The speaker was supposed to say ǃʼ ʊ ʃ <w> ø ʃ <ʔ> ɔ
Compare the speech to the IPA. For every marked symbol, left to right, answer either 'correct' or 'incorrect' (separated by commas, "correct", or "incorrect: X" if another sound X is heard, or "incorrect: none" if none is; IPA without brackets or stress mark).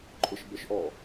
incorrect: b, correct